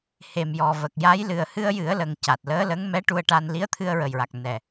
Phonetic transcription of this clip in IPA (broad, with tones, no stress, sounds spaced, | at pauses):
h e˨˩ m j ɔ˨˩ v ə˨˩ k̚ j a˧˥ j l ɨ˨˩ ə̯ h ɨ˧ ə̯ j ɨ˨˩˦ ə̯ l ə˨˩ ŋ c a˨˩ t̚ l əː˧˥ l ə˧˥ ŋ m ɛ˧˥ ʈ u˧ ə̯ ʈ a˧ n l i˧˥ ə̯ t̪ʰ ɨ˧ ə̯ ɹ ə˨˩ j ɹ a˨˩ k̚ n ɛ˨˩